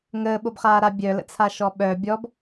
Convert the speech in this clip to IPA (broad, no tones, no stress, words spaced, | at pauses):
ŋəːɓobχaːɾa bʲœlə̰t͡sʰaʃɔ ɓœ bʲɔb